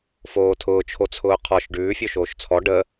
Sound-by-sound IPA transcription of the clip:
foːtʰʊːt͡ʃʰot͡sʰʊː qʰɔʃ ɖʉː fʲoʃoːʃt͡sʰɔ ɖə

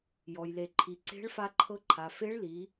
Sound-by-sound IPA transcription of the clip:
jɔ˩jle˩ ǃʰi˩ǀe̤˧˥ɭfa˧ ǃʰɤ˧ǃʰa˩ fe˧˥ɭli˩˧

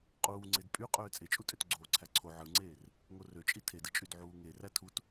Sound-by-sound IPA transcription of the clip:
qʼuːŋ͡ǀed pʼy qʼøːt͡sʼet͡ʃʼutʼøt ɡ͡ǀoːǀʰæǀʰo ʕɯŋ͡ǀeːr | ŋorøt͡ʃʼi tʰedɯt͡ʃʼyd ʕuːŋe rætʰut

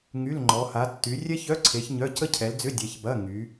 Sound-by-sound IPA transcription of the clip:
ŋy˧˥˧lŋ͡ǃɔ˨˦ ha˨˦tːy˨˦ rʲɛ˥çœ˧˥˧ǀʰe˨˦ç ɲœ˧˥˧ cə˥cʰɛ˨˦ld͡zʏ˧˥˧ dʲɛ˨˦çbɐ˧˥˧ŋy˨˦

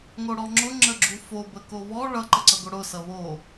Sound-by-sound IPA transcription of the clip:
ŋoɽɔŋ͡ǁʊ ŋ͡ǁəɡ͡ǁufo bəkoβɔ ɭʌ ǃəǀʌɡoɽʊ sʌβo

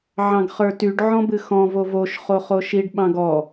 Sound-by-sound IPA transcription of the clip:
ʕɑ̃ɡχə˞tyɖ ʕɔ̃bɨxɔ̃ vovoʃ χoχoʃiɖ ɓɑ̃ɡɔ

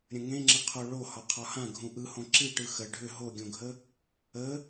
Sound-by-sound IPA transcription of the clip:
ɾʲə̃ŋẽŋ͡ǁəqʰo ɭo hɒqʰɒhã ɡʱũʔɯhõ ǁiʈɯ xə ɖʱʏ ɦoɡʲõɡʱə | ə

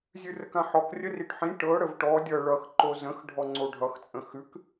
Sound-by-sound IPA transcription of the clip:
zʲʉrəkãħɔk rʲəriʈħĩ ʈɤ ɽəvʈɔ dʲʌ ɭʌx ǃozə̃x ɖʱɔŋ͡ǀoɖʱʌx t͡sʼə̃xʉk

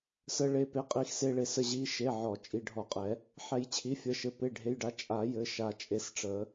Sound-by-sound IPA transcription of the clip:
sə˩˧˩ɭe˩˧˩pe˩˧˩ qʼi˨˩˦xse˩˧˩ɭe˨˩˦ sə˩˧˩ʑi˩˧˩ʃe˩˧˩ ʕɔ˨˩˦ t͡ʃʼi˩˧˩ɖʱɔ˨˩˦qʼɛ˨˩˦ | ħɛ˨˩˦jt͡ɕʰi˩˧˩fʲə˩˧˩ʃɘ˩˧˩ pe˩˧˩ɖʱe˩˧˩jɖa˩˧˩ t͡ʃʼa˨˩˦jɘ˩˧˩ ʃa˨˩˦t͡ʃʼe˨˩˦sʈ͡ʂə˨˩˦

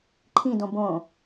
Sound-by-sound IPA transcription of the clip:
ǃʰĩdõ bõ

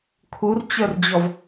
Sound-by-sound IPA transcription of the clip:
kʰurt͡ɕœrd͡ʑɔv

